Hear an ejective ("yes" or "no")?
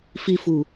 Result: no